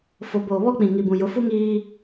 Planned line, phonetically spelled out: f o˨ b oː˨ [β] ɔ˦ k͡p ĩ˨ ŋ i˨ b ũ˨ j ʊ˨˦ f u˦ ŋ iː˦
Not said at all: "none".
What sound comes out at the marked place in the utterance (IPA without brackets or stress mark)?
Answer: β